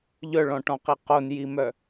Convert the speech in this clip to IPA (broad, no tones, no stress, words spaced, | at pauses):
ʎœɭɔ̃ʈɔ̃qi qonjimœ